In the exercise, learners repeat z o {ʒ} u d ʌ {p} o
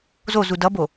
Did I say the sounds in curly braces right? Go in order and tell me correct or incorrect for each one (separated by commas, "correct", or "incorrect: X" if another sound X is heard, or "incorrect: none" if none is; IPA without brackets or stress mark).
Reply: incorrect: z, incorrect: b